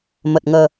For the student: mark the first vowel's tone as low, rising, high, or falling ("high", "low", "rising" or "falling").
low